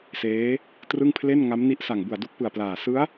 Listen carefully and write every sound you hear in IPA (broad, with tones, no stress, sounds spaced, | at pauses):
s eː˦˥ | t r ɯ˥˩ ŋ pʰ l e˥˩ n ŋ a˦˥ m n i˦˥ ʔ s a˨˩ ŋ b u˨˩ a̯ d u˦˥ k̚ p ɯ˨˩ a̯ p l aː˨˩ s ɯ˦˥ a̯